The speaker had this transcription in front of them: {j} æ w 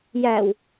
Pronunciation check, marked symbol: correct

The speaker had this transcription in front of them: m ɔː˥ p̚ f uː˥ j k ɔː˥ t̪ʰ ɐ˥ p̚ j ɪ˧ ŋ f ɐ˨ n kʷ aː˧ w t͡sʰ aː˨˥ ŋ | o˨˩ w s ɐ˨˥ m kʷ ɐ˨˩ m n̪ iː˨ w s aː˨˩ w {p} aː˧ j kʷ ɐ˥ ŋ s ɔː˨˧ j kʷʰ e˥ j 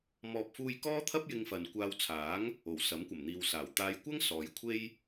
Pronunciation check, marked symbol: incorrect: t̪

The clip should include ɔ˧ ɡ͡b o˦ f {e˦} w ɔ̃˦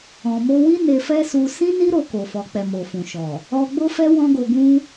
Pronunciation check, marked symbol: incorrect: ɛ˦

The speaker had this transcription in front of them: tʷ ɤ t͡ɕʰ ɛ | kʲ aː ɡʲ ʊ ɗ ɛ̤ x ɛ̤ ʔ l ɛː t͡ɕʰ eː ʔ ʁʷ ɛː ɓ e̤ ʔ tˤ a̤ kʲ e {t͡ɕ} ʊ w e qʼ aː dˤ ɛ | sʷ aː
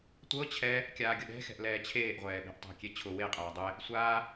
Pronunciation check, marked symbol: incorrect: t͡ɕʰ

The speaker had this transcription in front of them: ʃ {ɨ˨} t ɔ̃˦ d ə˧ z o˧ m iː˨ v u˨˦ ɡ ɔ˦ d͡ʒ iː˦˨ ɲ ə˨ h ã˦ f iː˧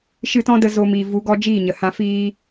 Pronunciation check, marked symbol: incorrect: ɨ˧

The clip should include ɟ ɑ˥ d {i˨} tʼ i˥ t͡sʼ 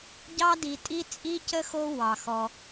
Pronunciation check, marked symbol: correct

